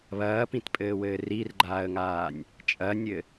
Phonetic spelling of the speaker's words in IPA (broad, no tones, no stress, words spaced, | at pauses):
βɐːpĩtpʼɘːwɘː rirɡ͡ǃaːə̯ŋaːnʲ | t͡ʃʼɐnʲɘ